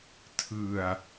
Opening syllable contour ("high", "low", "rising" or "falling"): low